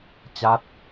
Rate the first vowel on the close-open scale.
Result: open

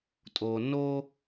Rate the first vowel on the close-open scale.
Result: mid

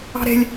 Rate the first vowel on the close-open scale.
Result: open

